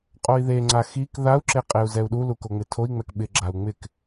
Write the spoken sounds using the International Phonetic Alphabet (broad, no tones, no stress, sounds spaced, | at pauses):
qʼ o i̯ ð e ŋ͡ǀ a x i k ð a u̯ ǁ e qʼ e u̯ z ɛ u̯ ɗ u l u k o ŋ͡m ɪ tʰ o i̯ ŋ͡m ɛ k ɓ ɪ ɡ͡ǁ a u̯ ŋ͡m ɪ k